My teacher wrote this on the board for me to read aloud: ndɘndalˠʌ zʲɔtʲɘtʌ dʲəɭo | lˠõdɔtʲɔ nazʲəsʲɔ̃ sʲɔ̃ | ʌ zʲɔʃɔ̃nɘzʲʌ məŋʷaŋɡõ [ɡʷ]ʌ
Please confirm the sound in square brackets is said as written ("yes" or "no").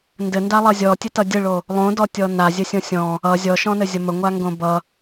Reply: no